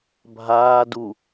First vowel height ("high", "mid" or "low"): low